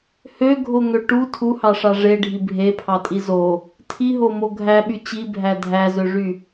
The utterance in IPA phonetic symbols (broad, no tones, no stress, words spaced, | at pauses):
høɡʱoŋø ʈu tʰuhɑʂɑ ʐeɖʱi bʱepʰɑtʼi zo | tʰiɦomo ɡʱæɓy t͡ɕibʱæ dʱæzøʐy